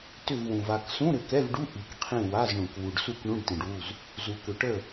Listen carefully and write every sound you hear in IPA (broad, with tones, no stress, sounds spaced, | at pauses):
t ʏ˦˨ v w ũ˨ v a˦˨ k s ũ˧˥˧ ɾ ʏ˨ k ɛ˧˥˧ v ɖ u˧˥˧ ʔ i˨ k qʰ ĩ˦˨ w a˧˥˧ z ɳ ũ˨ k w u˨ ɖ s u˦˨ k ɳ ũ˧˥˧ ɖ t ĩ˨ ɖ w u˦˨ z | z u˨ k ʏ˨ ʈ ə˦˨